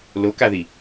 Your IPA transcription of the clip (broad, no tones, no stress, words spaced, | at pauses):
lokaði